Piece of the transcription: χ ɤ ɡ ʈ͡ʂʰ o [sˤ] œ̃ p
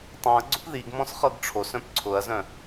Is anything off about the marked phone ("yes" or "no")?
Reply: yes